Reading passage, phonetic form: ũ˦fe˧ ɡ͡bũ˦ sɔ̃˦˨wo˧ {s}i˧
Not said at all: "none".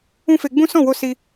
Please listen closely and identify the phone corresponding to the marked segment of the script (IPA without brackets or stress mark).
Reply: s